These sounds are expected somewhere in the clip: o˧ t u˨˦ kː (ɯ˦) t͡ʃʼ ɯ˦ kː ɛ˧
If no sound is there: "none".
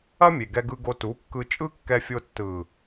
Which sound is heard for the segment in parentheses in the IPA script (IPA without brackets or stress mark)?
ɯ˧